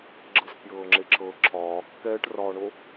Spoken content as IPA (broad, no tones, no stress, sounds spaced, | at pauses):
ɡ͡ǁ ɤ s pʲ ɤː ŋ͡ǁ e ǁʰ ɤ ǁʰ ɒː kː ɛː ʈ r ɒː ɳ o